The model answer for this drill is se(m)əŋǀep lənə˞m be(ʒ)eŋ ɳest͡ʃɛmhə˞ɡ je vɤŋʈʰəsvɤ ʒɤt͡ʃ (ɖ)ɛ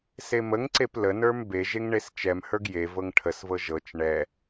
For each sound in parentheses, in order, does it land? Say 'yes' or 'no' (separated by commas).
yes, yes, no